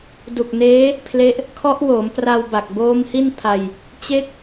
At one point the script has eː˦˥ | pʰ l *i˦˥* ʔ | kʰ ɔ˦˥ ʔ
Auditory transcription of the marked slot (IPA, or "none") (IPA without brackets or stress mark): e˦˥